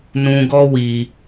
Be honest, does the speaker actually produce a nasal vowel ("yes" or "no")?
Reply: yes